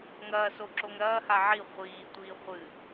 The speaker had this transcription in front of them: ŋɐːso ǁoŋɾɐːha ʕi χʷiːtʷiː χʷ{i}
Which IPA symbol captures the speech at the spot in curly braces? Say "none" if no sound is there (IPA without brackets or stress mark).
ɨ